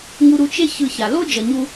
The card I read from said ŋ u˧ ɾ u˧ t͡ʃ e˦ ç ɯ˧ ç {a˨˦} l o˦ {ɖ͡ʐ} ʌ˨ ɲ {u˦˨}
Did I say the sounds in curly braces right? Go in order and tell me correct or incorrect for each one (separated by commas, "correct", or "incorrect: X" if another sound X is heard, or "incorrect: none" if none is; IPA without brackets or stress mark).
incorrect: a˨, incorrect: d͡ʒ, incorrect: u˧